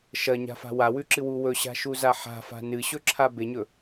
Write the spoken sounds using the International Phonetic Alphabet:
ʃ ɐ ɲ a̤ f a̤ w a w ʉ ǁ ɨ w u w ɵ ɕ a̤ ʃ u z a ħ a̤ f a̤ n ɨ ɕ ɵ ǁʰ a b e ɲ ɵ

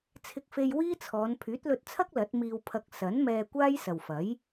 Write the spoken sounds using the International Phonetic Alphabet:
t͡sʰ ɪ˧ k̚ f e˧ j w iː˥ t͡sʰ ɔː˨˧ n pʰ yː˨˥ t̚ l ɵ˧ t̚ t͡sʰ ɐ˥ k̚ l ɐ˨˥ t̚ m iː˧ w pʰ ɐ˧ k̚ s ɐ˨˥ n m ɛː˧ kʷ aː˥ j s ɐ˨ w f ɐ˨˥ j

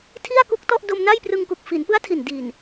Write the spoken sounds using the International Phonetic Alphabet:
tʰ i˥˩ a̯ k u˦˥ k̚ t ɔ˥˩ ʔ d o˧ m n a˥˩ j p r ɯ˧ ŋ k u˨˩ k̚ f i˩˦ n p ɯ˦˥ a̯ tʰ i˨˩ n d i˨˩ n

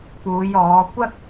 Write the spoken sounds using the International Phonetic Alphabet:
p uː˨˧ j ɔː˨˧ kʷ ɐ˥ k̚

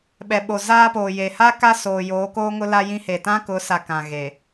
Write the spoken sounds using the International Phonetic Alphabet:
ɓ ɛ˨ ɓ o˨ z aː˦ p oː˨ j e˨ h aː˦ k a˦ s oː˨ j oː˨˦ k oː˦ ŋ ʊ˦ l a˦ j ĩ˦ h e˨ t ã˦ k ʊ˨˦ s a˨ k ã˨ ɣ e˨

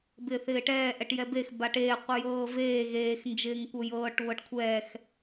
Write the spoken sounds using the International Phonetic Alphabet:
b ɪː θ ɪː ʈ ɛː ʔ ɛ ʈ j ɛ b e x b a ʈ eː qʷ ɪ j ɤː v eː ɣ eː x n d͡ʒ ɪː ŋ kʷ ɤ j ɤː ʈ β ɤ ʈ kʷʰ ɛː x

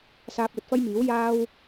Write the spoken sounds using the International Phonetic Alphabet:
s aː˧ p̚ l ɵ˨ t̚ f ɐ˥ j m iː˨˥ w j aː˥ w

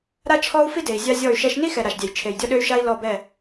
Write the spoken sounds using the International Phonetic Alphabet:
ɾ a˦ t͡ʃʰ ɔ˦ u̯ f i˦ d e˨ i̯ zʲ a˦ zʲ ɔ˦˨ y̯ ʃ ɛ˦ ʃ n i˦ x ɛ˨ ɾ a˨ ʃ dʲ ɛ˨ j t͡ʃʰ e˨ j dʲ ɔ˦ ɗ ø˦ y̯ ʃ a˦ i̯ l ɔ˦˨ b ɛ˦˨

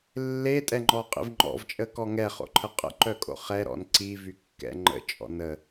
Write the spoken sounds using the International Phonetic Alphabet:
lː e tʼ ɛ ŋ͡ǃ ɔ qʼ ḭ v ŋ͡ǃ ɔ̰ v t͡ʃʼ ə k ɔ ŋ ɛ χ o̰ ǃʰ ə qʼ ə̰ ǃ œ kʼ o̰ χ ɛ ɾ ɔ̰ n ǀ i v y kː ɛ̰ ŋ͡ǃ ə̰ t͡ʃʼ ɔ̰ n ə

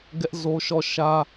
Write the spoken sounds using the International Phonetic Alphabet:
ɡ ɛ˦ ʔ z o˦ ʃ ɔ˦˨ ʃ ä˦

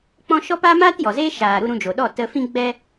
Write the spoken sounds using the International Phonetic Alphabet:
k͡p ɔ̃˧ ʃ ɔ˦ p a˦ m aː˦ t j ɔ˨ z eː˦ ʃ aː˨ ɾ u˧ ɾ ũ˧ d͡ʒ o˨ ɗ ɔ˦˨ t ə˧ f ĩ˦ ɡ͡b ɛ˦

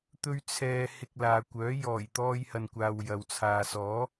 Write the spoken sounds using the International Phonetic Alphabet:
t̪ ɵ˥ ɥ t͡sʰ ɛː˧ h ɪ˧ k̚ l aː˨ kʷ œː˨˥ j ɔː˨˩ j t̪ ɔː˧ j h ɐ˨ n kʷ aː˨ w j ɐ˨ w t͡sʰ aː˨ s ɔː˨˥

